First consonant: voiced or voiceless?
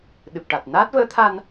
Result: voiced